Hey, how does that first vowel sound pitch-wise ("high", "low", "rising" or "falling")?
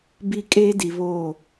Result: high